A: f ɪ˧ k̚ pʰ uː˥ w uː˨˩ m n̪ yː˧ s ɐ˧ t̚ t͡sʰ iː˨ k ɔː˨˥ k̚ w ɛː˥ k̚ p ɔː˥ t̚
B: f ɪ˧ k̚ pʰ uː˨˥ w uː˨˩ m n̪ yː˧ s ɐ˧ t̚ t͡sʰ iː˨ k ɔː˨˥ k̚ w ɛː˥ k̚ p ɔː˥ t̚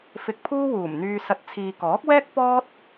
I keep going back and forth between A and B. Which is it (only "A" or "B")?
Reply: A